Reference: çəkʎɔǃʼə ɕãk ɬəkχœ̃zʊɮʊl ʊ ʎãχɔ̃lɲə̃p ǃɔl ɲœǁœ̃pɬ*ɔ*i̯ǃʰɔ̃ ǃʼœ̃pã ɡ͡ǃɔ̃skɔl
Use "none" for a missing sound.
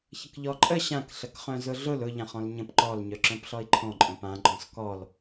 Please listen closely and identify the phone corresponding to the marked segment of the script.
ɔ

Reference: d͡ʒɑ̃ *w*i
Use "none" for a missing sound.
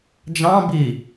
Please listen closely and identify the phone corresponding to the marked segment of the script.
b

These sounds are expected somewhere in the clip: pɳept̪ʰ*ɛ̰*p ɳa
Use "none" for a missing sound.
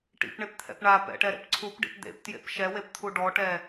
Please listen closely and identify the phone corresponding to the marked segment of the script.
ɛ̰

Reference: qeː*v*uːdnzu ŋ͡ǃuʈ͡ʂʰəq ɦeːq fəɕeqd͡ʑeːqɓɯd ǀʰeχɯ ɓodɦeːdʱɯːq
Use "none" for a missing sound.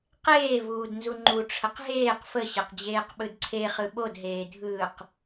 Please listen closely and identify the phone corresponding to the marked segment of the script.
v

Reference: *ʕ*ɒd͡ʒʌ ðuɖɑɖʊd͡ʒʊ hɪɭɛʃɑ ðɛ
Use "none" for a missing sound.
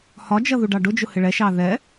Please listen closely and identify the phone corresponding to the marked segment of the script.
h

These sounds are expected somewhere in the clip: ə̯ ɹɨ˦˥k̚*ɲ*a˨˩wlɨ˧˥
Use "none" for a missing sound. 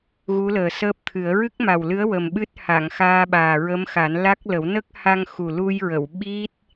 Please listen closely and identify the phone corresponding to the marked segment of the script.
m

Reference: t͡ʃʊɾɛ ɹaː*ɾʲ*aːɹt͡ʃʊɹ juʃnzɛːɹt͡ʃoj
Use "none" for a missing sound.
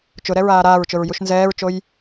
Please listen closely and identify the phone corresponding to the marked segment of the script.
ɾ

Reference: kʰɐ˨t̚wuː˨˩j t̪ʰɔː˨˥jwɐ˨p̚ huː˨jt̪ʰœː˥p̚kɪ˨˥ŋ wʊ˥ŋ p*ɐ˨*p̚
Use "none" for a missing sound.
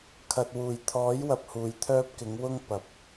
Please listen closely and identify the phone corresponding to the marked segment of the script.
ɐ˨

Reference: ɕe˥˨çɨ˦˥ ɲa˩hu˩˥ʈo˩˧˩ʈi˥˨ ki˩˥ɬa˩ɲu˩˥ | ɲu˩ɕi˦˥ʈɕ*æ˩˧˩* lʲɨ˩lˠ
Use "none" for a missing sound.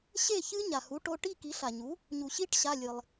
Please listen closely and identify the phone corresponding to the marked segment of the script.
a˩˧˩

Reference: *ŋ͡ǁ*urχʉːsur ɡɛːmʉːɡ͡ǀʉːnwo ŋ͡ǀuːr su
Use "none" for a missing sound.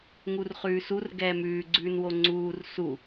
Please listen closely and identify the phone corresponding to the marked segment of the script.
ŋ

